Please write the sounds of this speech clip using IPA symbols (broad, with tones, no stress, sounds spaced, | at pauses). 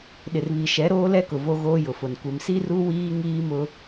ɗ ɪ˨ r β i˨ ʃ ɛ˨˦ ɾ oː˦ l ɛ˦ k ʊ˨ v o˦ ɣ oː˦ j ʊ˨ f ʊ˨ n kʷ ɪ˨ m s i˦ r u˦ w iː˦ ŋ iː˦ m ʊ˦